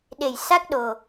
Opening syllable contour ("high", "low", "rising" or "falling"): low